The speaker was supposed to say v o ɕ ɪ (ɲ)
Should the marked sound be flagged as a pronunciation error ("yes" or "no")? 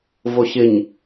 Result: no